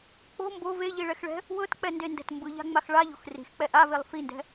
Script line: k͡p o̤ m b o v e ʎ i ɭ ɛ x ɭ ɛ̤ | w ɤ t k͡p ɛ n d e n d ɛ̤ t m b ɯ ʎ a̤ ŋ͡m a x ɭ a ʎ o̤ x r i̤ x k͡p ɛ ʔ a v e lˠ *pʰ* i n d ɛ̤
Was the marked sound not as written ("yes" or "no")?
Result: yes